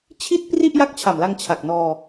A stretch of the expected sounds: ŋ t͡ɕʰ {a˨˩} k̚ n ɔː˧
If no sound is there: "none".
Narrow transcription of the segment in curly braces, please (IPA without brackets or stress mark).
a˨˩